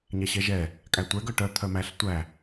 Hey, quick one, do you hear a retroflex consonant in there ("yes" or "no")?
yes